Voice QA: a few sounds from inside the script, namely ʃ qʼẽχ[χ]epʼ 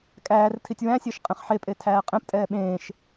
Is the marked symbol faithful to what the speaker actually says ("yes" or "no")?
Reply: no